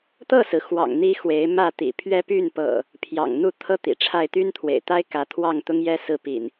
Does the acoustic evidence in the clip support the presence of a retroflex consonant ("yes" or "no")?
yes